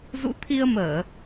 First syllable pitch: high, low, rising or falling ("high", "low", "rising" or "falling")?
rising